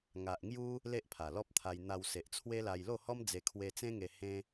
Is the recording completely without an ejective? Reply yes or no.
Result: yes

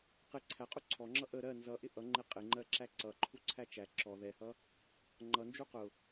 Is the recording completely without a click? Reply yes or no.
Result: no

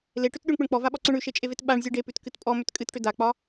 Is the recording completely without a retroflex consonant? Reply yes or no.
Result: no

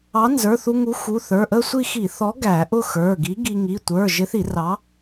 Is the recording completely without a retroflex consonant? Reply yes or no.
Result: yes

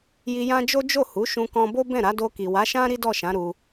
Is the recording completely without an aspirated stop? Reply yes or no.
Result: yes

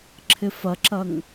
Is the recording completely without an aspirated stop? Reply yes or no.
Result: no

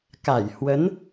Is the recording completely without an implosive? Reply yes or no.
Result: yes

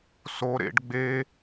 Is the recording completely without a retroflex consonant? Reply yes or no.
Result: no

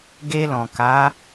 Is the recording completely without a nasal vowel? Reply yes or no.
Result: no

